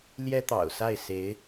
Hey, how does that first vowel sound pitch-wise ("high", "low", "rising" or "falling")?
high